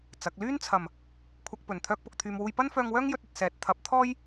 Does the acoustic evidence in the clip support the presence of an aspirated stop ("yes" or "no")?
yes